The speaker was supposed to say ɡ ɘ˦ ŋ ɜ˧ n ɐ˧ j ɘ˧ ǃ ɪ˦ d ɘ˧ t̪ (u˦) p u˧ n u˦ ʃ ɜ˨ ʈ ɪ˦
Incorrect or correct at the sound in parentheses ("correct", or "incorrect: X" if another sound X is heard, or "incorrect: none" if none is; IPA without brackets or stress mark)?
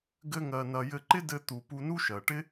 incorrect: u˨